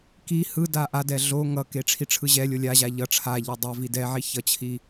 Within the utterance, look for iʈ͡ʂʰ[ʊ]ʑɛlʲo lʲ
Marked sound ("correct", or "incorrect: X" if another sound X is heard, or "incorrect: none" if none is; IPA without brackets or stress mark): incorrect: ɯ